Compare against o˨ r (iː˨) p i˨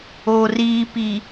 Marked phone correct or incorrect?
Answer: correct